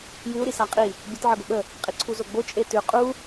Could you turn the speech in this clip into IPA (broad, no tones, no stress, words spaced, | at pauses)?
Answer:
jʉu̯ ɾisaqʼi | bʲət ʕɤɡoɓə | qʼiǀʰuzoɡ͡bo t͡ʃʼetʉ qʼu